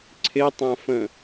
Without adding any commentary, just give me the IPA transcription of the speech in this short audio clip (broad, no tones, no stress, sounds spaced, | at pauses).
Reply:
ǀʰ ɪ tˤ ã f ə̃